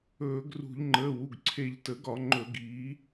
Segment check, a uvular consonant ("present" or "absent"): absent